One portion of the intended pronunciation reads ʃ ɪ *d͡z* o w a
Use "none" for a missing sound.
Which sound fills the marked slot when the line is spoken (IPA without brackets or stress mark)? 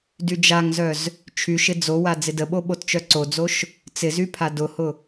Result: d͡z